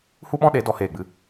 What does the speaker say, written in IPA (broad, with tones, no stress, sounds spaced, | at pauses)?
h u˦ ɓ ɔ̃˦ ɗ e˨˦ d ɔ˦ h eː˦˨ ɡ͡b ɨ˦